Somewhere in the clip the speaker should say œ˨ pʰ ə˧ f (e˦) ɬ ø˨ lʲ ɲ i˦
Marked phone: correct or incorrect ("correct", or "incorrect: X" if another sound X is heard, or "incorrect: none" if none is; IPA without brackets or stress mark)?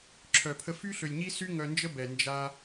incorrect: y˦